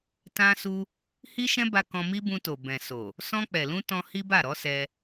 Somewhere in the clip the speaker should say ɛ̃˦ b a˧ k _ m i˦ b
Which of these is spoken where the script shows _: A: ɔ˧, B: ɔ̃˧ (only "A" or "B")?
B